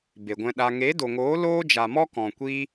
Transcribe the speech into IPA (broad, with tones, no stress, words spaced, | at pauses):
be˨ɡʷɛ̃˧ɗa˧ ŋe˨˦do˨ŋoː˨˦ loː˦d͡ʒa˨mɔ˦ kɔ̃˨kʷi˧